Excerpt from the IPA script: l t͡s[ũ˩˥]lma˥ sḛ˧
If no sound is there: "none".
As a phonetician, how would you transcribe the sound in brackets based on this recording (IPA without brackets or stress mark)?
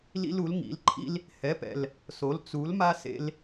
u˩˥